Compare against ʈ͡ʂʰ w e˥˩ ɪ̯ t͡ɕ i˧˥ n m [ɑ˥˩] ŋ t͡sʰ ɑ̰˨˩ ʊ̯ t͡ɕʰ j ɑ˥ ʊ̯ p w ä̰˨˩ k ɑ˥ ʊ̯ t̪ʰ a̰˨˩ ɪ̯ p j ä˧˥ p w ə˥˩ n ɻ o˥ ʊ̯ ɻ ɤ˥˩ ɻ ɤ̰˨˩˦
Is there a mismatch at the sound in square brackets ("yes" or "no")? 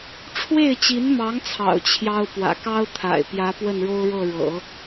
yes